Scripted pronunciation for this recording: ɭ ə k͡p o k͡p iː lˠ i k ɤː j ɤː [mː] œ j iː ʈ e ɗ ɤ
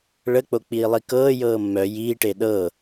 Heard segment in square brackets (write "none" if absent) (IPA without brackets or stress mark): mː